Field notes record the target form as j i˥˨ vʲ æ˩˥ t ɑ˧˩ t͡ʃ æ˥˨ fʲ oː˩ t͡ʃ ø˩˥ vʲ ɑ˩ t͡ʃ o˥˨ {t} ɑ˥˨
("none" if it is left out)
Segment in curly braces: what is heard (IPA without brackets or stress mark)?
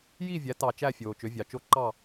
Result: ǃ